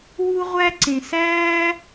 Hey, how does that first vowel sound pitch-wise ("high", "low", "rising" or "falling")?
high